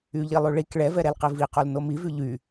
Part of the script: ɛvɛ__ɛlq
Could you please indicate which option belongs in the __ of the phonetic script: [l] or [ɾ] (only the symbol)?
ɾ